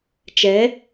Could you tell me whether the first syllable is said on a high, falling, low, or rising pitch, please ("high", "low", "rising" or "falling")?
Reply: rising